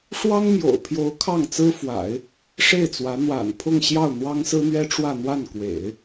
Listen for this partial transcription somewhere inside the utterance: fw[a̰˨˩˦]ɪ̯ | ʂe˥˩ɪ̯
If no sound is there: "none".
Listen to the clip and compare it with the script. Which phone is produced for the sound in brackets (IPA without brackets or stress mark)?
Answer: a̰˨˩˦